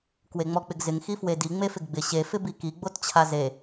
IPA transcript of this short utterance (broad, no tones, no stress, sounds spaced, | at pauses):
k w e ŋ͡m ɔ k͡p ɪ ɡ z ɪ ŋ x i f w e d i ŋ͡m e f ɪ ɡ ɡ͡b ɪ ɕ e f ɪ b i k i ɡ͡b o t t͡ɕʰ a z e